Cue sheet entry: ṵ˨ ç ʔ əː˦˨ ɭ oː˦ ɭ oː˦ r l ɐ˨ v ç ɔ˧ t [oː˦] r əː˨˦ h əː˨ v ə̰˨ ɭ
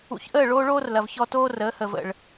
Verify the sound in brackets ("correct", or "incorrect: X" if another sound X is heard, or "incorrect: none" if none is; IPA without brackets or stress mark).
correct